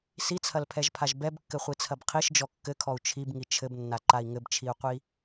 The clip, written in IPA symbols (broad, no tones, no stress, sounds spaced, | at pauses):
s i t͡sʰ ɐ l pʰ ɛ ʒ pʰ a ʒ b ɛ b kː ɘ χʷ i t͡sʰ ɐ b qʰ i ʃ d͡ʒ ɔ kː ɘ kʰ ɔ u̯ t͡ʃʰ i b ŋ i t͡ʃʰ ɘ b nː a ǃ a i̯ ŋ ɘ b t͡ʃʰ i u̯ qʷ i